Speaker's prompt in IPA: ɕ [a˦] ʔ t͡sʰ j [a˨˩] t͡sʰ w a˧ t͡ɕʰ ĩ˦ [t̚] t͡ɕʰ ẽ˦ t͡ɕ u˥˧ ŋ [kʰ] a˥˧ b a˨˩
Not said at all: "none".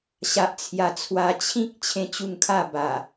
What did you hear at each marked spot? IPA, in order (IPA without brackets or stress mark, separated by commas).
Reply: a˨, a˨˩, k̚, kʰ